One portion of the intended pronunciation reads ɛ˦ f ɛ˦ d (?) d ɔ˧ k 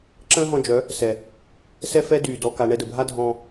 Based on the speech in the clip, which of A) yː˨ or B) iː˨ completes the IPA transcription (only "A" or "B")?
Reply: A